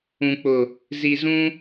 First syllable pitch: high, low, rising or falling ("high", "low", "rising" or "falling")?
low